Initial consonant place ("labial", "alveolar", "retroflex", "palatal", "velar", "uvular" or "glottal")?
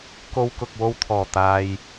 velar